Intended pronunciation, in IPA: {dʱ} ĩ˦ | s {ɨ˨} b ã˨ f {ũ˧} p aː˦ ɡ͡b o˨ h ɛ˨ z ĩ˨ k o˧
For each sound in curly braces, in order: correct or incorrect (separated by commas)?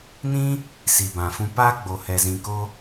incorrect, incorrect, correct